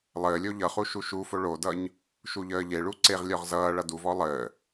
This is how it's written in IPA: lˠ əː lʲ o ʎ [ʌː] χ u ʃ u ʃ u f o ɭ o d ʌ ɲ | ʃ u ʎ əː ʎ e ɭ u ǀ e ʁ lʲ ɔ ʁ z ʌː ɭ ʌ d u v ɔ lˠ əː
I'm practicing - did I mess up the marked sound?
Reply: yes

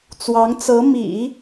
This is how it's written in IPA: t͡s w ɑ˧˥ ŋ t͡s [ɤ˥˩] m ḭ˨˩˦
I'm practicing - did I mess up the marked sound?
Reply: yes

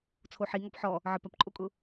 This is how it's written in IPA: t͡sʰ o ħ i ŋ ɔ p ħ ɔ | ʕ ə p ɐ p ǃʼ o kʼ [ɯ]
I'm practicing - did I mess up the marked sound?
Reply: yes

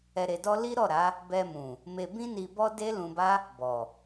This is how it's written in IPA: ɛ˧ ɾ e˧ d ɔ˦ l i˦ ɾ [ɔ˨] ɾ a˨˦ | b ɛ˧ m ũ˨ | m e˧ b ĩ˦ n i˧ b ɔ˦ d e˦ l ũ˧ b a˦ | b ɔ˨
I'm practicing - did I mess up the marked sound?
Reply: yes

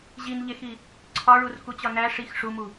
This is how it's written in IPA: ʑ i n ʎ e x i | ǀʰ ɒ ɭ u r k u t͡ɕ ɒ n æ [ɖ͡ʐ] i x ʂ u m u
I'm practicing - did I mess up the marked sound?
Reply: yes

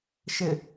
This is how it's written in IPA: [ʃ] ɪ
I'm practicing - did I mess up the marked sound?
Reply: no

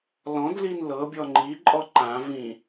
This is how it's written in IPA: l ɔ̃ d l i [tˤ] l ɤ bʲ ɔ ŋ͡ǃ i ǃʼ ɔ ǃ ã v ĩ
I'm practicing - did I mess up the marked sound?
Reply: yes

